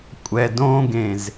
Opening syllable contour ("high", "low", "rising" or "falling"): low